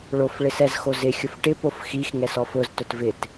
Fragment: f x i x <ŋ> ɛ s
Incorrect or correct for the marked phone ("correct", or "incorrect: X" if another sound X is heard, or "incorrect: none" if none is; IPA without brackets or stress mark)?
correct